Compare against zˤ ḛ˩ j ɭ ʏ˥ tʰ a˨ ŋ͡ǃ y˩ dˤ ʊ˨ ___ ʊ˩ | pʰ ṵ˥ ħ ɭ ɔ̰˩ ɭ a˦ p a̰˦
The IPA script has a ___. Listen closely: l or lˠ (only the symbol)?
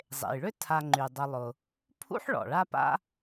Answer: lˠ